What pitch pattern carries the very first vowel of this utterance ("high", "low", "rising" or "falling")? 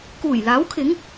low